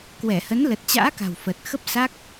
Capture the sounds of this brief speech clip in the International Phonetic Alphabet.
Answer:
k w ɛ˧˩ h ə˨˦ n l ə˨˩ t̚ t͡ɕ a̰ː˧˥ k a̤˨˩ w f ə˨˩ t̚ x ə˦˥ p̚ s a˦˥ k̚

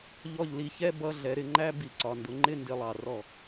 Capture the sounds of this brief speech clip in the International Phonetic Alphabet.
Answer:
ʎ ɔ˧˩ ʎ l i˩˧ ç ɛ˧˥˧ b ʌ˧˥˧ ɮ ɛ˩˧ ɾ ɪ˩˧ ŋ͡ǃ æ˧˥˧ b i˧˩˧ ǀ ɒ˩ n d ʊ˩˧ ŋ͡ǃ ɪ˧˥˧ n d ɪ˧˩˧ lˠ ɑ˩ r ɔ˧˩

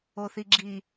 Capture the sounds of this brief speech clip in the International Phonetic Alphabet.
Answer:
o θ i ɡ͡ǁ i

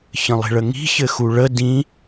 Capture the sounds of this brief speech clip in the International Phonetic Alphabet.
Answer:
ç ə̃ lˠ i̤ ɭ ə ŋ i̤ ç ɘ x u ɭ ə d ĩ

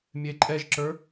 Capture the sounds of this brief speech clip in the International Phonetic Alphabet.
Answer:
mʲ e ǃʼ ɛ ʒ ǁ ə˞

